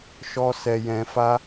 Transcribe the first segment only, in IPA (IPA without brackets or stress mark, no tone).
ʃ